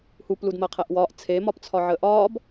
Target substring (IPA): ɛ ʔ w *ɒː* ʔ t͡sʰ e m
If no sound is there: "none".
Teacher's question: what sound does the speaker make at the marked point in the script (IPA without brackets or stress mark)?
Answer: ɒː